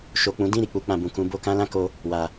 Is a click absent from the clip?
yes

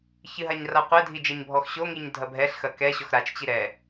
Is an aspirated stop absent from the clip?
yes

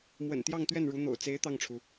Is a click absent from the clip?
yes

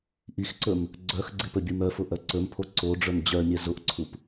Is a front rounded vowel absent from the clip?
no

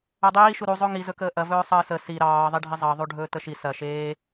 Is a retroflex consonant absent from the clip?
no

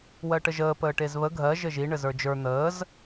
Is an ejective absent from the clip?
yes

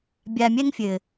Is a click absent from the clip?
yes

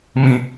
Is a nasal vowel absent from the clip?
no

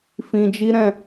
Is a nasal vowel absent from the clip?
no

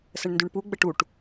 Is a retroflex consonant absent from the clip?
no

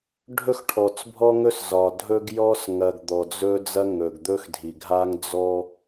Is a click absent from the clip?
yes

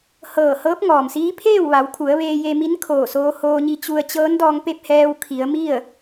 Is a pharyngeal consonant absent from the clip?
yes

